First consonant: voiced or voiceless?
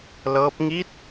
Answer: voiced